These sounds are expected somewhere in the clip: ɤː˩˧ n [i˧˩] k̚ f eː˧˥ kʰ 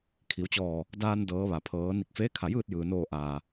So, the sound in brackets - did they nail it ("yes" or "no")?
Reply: yes